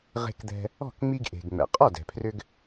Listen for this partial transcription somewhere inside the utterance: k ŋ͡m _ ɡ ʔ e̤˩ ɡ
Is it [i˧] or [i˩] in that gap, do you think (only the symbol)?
i˧